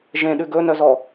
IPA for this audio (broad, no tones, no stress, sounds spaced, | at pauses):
ʒ ẽ ɗ ʉ ɡ ɵ n œ z ɔ